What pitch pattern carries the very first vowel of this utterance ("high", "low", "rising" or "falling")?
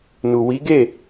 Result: low